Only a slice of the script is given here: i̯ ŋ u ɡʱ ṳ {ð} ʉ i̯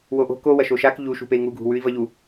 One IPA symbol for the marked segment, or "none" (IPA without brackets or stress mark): w